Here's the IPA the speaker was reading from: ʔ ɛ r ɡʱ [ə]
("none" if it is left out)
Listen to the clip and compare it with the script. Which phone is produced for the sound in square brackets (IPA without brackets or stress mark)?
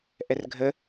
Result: ə